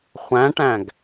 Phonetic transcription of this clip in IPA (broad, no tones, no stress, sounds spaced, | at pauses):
χʷ æ̃ ʈ æ̃ ɡ